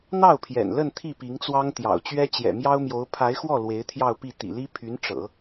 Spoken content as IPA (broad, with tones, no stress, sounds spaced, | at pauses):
n̪ ɑ˥˩ ʊ̯ pʰ j ɛ̰˨˩ n l ə˥˧ n t̪ʰ i˥˩ p i˧˥ ŋ t͡s w ɑ˥ ŋ t̪ j ɑ̰˨˩ ʊ̯ t͡ɕ ɥ ɛ˥ t͡ɕ j ɛ̰˨˩ m j ɑ˥ ʊ̯ m j o˧˥ ʊ̯ pʰ a˧˥ ɪ̯ x w ɔ˥˩ l w e˧˥ ɪ̯ t̪ʰ j ɑ˥˧ ʊ̯ p i˥˩ t̪ ḭ˨˩ l i˥ pʰ y˧˥ n ʈ͡ʂ ɤ̰˨˩˦